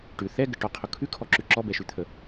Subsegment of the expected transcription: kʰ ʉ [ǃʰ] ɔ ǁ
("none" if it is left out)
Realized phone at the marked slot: kʰ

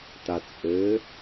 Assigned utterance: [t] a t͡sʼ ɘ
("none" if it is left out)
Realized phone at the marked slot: t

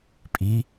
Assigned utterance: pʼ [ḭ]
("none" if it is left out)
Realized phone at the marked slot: i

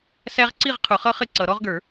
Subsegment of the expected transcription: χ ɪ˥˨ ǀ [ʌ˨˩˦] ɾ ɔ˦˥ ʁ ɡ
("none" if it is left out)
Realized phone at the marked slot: ʌ˨˩˦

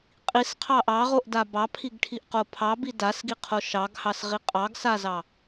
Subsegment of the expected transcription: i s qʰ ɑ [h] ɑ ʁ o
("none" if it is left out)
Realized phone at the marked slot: ʔ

